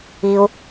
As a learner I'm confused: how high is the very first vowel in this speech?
high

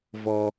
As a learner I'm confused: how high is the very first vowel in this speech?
mid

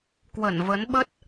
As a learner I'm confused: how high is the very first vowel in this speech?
mid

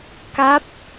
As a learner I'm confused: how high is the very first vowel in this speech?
low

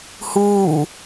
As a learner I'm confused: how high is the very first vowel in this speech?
high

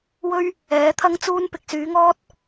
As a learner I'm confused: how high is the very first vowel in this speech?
mid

